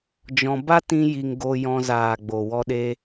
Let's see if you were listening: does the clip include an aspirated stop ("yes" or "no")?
no